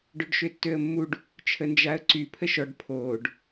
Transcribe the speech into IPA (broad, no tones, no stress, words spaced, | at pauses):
ɖøɖʃøtːøə̯mːuɖ | t͡ʃʰənd͡ʒaə̯ǀy pʰəʃɔɖ pʰoːɖ